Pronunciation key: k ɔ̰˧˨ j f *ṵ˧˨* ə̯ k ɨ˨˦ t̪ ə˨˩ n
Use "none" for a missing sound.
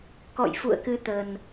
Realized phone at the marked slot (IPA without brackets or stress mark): ṵ˧˨